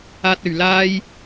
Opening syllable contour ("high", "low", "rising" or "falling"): high